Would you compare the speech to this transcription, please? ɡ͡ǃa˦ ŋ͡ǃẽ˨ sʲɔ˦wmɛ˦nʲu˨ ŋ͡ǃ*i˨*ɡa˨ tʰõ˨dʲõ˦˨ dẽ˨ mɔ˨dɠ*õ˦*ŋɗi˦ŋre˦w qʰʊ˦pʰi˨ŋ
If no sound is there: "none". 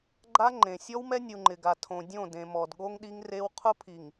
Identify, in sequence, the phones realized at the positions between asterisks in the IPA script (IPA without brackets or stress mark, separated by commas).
ɪ˨, o˦